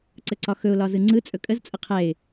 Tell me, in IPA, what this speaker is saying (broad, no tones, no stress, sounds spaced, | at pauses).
ǀ ə ǀ ɒ x ɵ ʊ̯ l ɒ z ɯ ŋ͡ǀ ɯ t͡sʼ ɵ kʼ ə z t͡sʼ ə qʰ ɛ ɪ̯